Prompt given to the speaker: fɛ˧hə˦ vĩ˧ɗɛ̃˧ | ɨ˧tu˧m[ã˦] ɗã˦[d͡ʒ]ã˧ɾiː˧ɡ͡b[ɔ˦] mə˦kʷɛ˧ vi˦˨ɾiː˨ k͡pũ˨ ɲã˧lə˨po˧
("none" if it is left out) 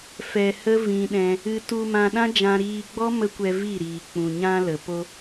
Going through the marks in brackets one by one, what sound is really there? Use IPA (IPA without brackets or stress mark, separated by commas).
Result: ã˧, d͡ʒ, ɔ˦